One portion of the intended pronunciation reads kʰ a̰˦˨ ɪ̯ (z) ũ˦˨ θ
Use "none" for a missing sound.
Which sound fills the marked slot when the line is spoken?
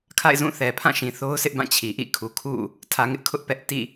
z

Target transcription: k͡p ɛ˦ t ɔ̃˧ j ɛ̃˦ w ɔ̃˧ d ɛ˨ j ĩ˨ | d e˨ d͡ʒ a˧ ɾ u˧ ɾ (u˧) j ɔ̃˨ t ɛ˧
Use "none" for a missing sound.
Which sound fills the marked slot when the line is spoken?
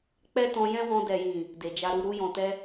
u˧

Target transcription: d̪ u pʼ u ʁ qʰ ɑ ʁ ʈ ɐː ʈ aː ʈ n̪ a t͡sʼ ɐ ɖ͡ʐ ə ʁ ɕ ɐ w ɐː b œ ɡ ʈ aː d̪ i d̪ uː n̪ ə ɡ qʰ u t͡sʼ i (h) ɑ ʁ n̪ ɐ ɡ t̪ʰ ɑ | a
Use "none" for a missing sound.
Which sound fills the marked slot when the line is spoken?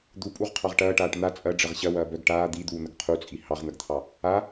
h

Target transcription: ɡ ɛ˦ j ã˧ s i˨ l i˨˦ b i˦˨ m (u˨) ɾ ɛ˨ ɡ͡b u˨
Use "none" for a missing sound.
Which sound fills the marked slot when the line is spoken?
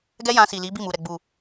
u˨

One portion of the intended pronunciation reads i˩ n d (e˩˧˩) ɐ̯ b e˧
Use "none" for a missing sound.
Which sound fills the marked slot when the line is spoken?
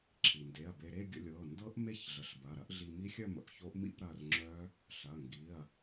e˩˧˩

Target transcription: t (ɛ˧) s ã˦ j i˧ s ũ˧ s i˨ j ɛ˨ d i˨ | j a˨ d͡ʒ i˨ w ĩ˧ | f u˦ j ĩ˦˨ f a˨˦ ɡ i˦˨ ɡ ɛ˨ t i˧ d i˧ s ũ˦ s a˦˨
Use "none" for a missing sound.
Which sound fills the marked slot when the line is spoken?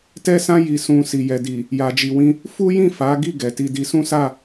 ɛ˦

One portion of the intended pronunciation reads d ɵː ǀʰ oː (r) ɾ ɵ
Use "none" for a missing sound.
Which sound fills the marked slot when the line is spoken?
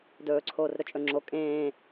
r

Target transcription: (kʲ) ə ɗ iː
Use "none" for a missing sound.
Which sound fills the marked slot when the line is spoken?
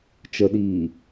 t͡ʃ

